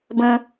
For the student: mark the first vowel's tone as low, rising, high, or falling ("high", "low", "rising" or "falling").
high